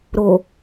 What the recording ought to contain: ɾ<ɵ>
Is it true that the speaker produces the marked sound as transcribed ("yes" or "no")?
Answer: no